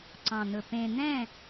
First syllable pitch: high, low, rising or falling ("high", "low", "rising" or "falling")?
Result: low